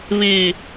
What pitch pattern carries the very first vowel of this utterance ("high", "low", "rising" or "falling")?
low